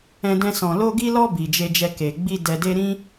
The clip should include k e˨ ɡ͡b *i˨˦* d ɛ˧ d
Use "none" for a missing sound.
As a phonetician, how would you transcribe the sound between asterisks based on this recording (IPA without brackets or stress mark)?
i˧